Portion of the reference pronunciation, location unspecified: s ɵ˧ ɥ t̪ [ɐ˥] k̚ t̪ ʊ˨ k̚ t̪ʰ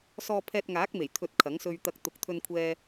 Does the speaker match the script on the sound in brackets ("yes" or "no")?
no